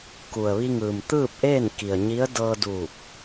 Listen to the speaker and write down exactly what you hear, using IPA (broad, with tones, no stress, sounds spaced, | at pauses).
k u˩ ə̯ ʋ i˧ ŋ ɯː˩ m t̪ ɯː˥˨ p̚ ʔ eː˥˨ n k i˩ ə̯ ɲ i˧˥ ə̯ d ɤː˧ d uː˧˩ k̚